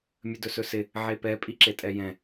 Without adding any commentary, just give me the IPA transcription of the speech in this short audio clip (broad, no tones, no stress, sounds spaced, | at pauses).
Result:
mʲ ə d ɵ s ɵ s ɪ | ʕ e p ɛ pʼ i ǁ e tʼ ɛ j ɛ̃